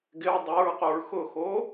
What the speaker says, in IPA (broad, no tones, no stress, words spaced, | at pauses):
ɡɪɹ dˤoɹquɹ xʊxo